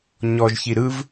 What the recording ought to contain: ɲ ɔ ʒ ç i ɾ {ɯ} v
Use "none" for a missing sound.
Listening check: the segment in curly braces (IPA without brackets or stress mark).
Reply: ɯ